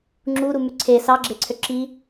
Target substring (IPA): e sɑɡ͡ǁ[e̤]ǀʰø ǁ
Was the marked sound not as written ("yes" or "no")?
yes